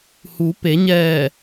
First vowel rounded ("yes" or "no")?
yes